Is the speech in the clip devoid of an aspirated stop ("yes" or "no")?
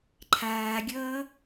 no